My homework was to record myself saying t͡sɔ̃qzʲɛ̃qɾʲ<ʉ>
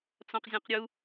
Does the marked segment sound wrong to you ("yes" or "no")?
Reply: yes